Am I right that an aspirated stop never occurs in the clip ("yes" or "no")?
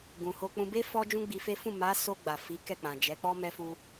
yes